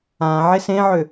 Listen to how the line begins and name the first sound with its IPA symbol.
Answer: ã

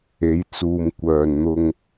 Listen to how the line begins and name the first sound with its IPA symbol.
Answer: e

